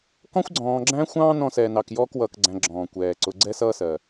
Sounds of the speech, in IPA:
kɔ̃˦xʷɡ͡ǀɔ̃ː˨ɡ͡ǁæ̃˦xʷɑ̃ː˦ nɔ̃˦sɛː˨nɑ˨kjɔː˥k wʌː˨kɡ͡ǀæ̃˨ ɡ͡ǁɔ̃ː˩kʷɛː˩ǀʊ˨ ɡ͡ǀɛ˦sʌː˦sɜ˩

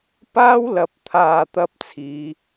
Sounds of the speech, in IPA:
paː˥wlɐ˨˥p̚t̪ʰaː˨ t̪ɐ˥p̚ t͡sʰiː˨˧

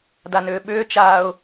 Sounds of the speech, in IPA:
danʏːɓʏːt͡ʃaːʊ̯

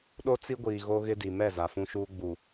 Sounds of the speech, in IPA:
ɗo˦ t͡si˦ɡʷiː˨ ɣo˦ɣɪ˦di˨ mɛ˦˨ za˨fũ˦ʃuː˦ ɡ͡bu˨

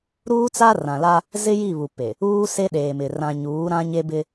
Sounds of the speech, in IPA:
ɾuː˦t͡sa˦ rã˨la˦ | zɪ˦ji˦˨ βu˨pe˨ | uː˦se˦ɗeː˨mɪ˨ rã˨ɲuː˨˦ ɾã˦ɲe˦bɪ˦

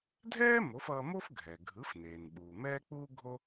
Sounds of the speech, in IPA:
dʱɛː˥ mo˩˥fʌː˧mo˥f ɡʱɛ˩ ɡʱɯ˩˥fneː˩nɓuː˩ mɛː˥k͡puː˥ɡʱo˥

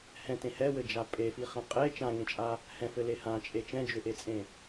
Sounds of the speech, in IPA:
hɛ̃tẽ hɛwɘd͡ʒa pʼefiχɛ̃ qʼe t͡ʃãŋẽt͡ʃʼa | hɛ̃fɘle hãt͡ʃʼe t͡ʃɛ̃d͡ʒʏʔet͡sʼẽ

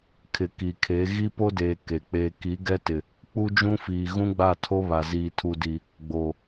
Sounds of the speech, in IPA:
kʰɪ˨ki˨kʰe˨˦ ɣi˦ po˦deː˨ ke˨ k͡peː˨ki˨˦ ɡɛ˦tɪ˨ | k͡pu˦d͡ʒũ˦fiː˨ ɣũ˦ɡ͡ba˦˨tʰo˦ βa˨ziː˨tʰu˨di˨ | ɡ͡bo˨

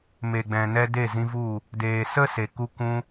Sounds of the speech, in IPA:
me˨ɡ͡bɛ̃˨nɛ˧ de˦˨zĩ˧vu˦˨ | deː˨sə˦se˨ku˧ kʷũ˧

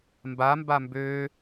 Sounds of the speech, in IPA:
mbamba mbø

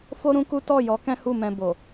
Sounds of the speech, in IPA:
fo˦ɾũ˦ku˦ tɔ˦˨jɔ˨˦ kɛ̃˦hu˦˨mɛ̃˧ bo˨

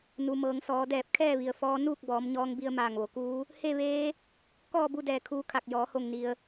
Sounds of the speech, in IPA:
nu˩mɤː˩ŋ sɔː˩˧dɛː˧˩p̚kʰɛː˥˨ʋi˩ə̯ fɔː˧˥ nuː˥˨k̚bɔː˩˧mɲɔː˧ŋbi˧ə̯ maː˧˩ŋʋo˩˧kuː˧˥ | he˥˨ʋeː˧˥ | kɔː˥˨bu˥˨dɛː˧˩ kʰuː˧˥kʰa˧˩k̚ jɔː˩˧ho˧˩ŋni˩ə̯

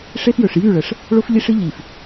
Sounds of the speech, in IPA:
ʂe˦fjɵ˨ʂ jy˦˨ɭə˨ʂ | ɭo˦fʎi˦ʂɨ˦ ʎi˨f

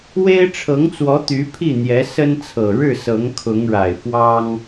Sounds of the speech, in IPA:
we˥ɪ̯ ʈ͡ʂʰɤ˧˥ŋt͡swɔ˧˥ t̪y˧˥pʰi˥˩n̪jɛ˧˥ sə˥nt͡sʰɤ˨˩ ɻɻ̩˥˩sɤ˧˥ŋ kʰʊ˧˥ŋɻa˨˩ɪ̯fwɑ˥ŋ

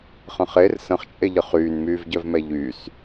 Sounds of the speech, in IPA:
χə̃χer sə̃χt͡ʃʼeʎə χyːnmyːvɟœvmɛ ʎys

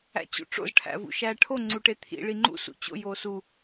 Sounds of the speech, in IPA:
æ̰t͡ɕṵʈ͡ʂo̰z ʈʰæ̰vṵʃæʈʰo ŋ͡ǀuʈet̪ʰḭ ɭiŋ͡ǃṵ sṵt͡ɕo̰ josu

